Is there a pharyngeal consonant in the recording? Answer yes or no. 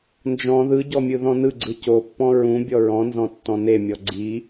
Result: no